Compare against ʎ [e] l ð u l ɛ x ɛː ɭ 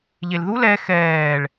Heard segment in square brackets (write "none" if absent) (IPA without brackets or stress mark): e